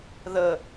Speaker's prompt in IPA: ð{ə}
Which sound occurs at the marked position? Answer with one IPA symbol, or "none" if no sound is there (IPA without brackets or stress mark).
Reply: ə